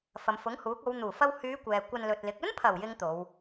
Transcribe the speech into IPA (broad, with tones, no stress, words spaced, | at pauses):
fɐ˨mfʊ˨˥ŋhuː˨˥k̚o˨˧w n̪uː˨˩fɐ˧whyː˨˧ kʷɛː˨kʷɐ˧nlɵ˨t̚lɪ˨˥k̚ ɵ˥npʰɐ˨˩w jɪ˥ŋt̪o˨˧w